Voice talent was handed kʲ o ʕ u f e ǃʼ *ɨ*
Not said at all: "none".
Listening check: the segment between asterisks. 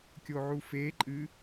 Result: ɨ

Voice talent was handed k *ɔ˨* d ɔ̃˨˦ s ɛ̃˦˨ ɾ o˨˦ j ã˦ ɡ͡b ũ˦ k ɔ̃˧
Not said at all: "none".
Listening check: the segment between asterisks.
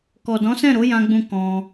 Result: ɔ˨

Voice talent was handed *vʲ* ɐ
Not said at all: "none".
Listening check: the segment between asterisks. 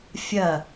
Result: fʲ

